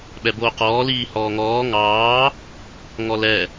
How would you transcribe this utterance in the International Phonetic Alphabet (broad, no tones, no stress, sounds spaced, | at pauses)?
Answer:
ɓ ɛ b oː q ɔː l iː h ɔː ŋ ɔː ŋ ɑː | ŋ ɔ l ɛ